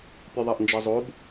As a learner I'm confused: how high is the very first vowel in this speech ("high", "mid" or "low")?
high